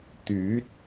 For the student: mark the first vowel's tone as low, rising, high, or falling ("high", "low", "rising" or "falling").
rising